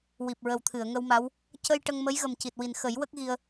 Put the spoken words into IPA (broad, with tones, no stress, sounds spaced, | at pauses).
w i˨˩ p̚ ɹ ə˨˩ w t̪ʰ ɨ˨˩˨ ə̯ ŋ ə˧ w m a˧˥ w | c ə˧ j ʈ ə˧ ŋ m ə˧˥ j ɣ ə˨˩ m c i˨˩ t̚ w i˨˩ n x ə˨˩˦ j w ə˦˥ k̚ ɣ i˧ ə̯